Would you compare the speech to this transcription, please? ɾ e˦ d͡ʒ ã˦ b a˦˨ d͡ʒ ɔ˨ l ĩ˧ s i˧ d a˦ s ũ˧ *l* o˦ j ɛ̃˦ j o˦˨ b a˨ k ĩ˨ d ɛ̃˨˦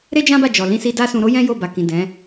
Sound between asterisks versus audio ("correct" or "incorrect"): incorrect